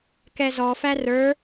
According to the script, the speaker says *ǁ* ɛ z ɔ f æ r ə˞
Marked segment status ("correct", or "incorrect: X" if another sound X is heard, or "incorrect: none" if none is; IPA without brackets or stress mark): incorrect: k